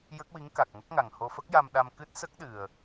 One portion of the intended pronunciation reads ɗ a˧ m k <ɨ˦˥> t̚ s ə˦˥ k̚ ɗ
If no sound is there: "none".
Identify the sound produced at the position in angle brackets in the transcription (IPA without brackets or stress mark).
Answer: ɨ˦˥